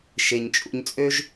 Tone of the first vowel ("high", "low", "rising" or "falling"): low